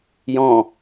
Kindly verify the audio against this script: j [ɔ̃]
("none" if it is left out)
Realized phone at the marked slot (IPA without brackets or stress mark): ɔ̃